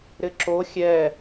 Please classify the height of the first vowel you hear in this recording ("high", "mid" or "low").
high